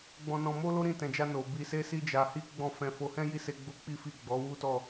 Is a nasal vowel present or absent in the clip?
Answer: present